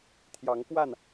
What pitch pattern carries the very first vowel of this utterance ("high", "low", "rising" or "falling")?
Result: rising